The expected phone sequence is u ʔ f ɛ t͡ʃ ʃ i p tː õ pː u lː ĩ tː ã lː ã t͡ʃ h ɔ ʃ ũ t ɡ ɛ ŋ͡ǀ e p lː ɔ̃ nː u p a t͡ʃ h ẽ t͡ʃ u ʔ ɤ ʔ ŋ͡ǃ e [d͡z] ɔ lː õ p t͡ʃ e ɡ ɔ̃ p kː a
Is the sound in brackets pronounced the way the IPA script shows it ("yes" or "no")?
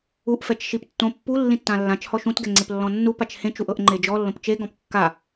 no